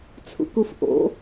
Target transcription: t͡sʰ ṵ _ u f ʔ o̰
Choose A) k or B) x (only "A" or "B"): A